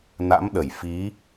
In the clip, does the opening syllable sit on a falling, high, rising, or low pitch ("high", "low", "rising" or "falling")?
rising